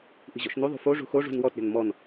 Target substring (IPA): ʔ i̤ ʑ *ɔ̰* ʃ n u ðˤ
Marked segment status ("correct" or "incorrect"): correct